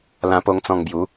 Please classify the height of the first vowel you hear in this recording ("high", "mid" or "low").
low